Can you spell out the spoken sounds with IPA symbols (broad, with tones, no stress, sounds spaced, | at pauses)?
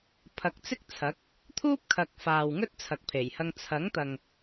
pʰ ɐ˨ k̚ t͡s ɪ˥ k̚ t͡sʰ ɐ˨˥ k̚ | t̪ʰ uː˥ p̚ kʰ ɐ˨ k̚ f aː˨ w ŋ ɵ˥ t̚ t͡sʰ ɐ˨ k̚ pʰ e˨˩ j h ɐ˧ ŋ t͡sʰ ɐ˨˥ ŋ t̪ ɐ˨ ŋ